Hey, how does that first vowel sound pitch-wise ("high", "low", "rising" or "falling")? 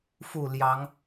falling